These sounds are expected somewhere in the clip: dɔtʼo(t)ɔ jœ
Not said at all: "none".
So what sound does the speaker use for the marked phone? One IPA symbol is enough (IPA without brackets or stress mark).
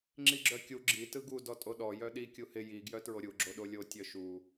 ɗ